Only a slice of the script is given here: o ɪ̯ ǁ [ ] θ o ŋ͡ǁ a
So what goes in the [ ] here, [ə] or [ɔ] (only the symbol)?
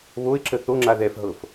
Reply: ə